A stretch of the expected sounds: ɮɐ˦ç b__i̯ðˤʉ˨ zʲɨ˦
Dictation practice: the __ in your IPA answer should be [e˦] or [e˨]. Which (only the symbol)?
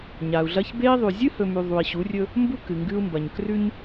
e˦